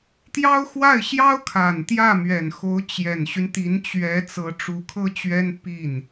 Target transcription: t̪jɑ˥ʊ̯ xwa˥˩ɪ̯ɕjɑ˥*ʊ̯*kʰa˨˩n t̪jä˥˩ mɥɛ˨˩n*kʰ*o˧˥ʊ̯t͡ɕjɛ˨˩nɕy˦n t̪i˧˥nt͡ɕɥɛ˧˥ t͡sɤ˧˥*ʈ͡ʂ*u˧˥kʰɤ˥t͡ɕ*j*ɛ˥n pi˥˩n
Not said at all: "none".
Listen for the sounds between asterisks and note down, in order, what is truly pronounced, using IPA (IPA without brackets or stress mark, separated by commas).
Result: ʊ̯, x, ʈ͡ʂ, ɥ